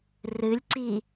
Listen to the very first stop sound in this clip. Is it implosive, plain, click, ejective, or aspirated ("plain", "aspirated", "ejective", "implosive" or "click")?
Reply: click